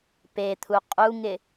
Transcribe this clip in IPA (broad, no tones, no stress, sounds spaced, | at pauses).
p e t̪ʰ u qʼ u ŋ ɪ